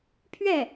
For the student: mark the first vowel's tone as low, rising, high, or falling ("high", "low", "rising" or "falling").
falling